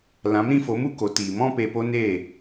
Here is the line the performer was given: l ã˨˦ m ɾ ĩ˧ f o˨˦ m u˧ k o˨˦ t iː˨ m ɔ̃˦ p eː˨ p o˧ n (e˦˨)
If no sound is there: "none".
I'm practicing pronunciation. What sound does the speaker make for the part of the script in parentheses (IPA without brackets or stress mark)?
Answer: e˦˨